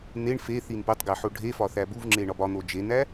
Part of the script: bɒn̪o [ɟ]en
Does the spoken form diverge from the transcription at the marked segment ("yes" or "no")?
yes